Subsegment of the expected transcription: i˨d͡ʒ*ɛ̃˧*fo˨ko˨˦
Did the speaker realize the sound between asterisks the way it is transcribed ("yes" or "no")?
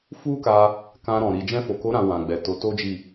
yes